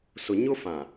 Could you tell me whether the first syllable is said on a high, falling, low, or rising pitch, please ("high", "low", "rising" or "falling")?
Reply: low